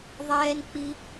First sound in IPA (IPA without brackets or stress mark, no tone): ðˤ